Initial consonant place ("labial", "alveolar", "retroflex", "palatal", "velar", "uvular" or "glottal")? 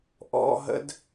glottal